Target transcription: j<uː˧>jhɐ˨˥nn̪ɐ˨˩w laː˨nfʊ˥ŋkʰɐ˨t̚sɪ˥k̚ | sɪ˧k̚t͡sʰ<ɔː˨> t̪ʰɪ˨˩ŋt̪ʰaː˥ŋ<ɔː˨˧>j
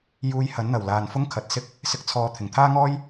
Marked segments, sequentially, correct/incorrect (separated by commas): correct, correct, incorrect